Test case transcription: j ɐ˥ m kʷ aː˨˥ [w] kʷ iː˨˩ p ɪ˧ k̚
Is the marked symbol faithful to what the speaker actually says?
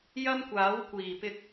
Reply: yes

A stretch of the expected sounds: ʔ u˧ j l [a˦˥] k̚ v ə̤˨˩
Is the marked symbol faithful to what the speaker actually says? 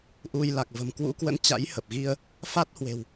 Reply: no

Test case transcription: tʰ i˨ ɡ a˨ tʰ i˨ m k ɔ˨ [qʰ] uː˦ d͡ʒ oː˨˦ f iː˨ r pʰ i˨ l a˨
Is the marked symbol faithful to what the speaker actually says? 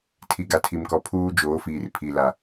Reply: no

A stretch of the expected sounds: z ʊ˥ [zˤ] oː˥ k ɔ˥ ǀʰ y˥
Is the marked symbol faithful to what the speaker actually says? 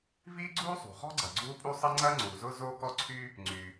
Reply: no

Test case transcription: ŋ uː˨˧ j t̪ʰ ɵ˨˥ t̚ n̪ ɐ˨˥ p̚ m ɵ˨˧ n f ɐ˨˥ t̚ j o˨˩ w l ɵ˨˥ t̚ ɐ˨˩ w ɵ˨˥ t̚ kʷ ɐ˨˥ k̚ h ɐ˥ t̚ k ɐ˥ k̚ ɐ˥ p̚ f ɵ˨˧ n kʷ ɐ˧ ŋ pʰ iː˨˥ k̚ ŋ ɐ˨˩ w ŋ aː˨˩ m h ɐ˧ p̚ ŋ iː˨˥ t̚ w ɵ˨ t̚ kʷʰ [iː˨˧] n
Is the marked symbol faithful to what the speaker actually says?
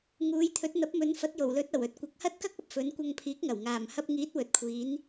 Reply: yes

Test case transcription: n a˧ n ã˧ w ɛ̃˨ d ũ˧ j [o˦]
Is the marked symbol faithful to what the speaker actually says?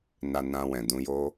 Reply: yes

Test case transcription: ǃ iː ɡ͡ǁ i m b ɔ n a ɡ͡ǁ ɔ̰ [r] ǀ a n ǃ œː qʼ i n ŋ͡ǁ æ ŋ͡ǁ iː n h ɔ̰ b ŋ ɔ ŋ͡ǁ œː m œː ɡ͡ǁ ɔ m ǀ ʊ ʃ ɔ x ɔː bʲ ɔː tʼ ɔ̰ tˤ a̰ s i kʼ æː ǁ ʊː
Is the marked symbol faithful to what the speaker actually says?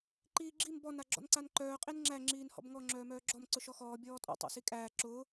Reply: no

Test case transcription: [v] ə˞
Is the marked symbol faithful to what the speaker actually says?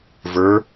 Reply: yes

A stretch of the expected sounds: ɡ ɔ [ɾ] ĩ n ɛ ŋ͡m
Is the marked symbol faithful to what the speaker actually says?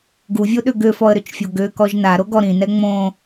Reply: yes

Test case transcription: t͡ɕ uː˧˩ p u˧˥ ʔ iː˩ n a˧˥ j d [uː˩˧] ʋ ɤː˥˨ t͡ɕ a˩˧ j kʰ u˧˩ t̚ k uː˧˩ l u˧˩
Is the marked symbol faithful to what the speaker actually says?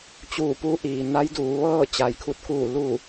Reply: yes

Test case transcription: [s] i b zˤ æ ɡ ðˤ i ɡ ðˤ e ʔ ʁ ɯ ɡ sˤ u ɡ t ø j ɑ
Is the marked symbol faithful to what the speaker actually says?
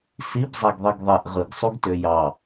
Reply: yes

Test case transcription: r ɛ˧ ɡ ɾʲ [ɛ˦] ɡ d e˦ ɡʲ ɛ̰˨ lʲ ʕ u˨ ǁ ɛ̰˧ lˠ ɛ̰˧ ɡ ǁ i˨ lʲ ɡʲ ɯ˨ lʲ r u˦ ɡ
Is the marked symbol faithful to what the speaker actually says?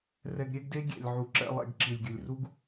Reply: yes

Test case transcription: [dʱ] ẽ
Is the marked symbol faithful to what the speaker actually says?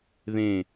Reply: no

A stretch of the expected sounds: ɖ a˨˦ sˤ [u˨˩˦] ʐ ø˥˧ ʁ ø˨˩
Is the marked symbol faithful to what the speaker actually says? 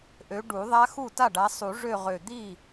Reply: yes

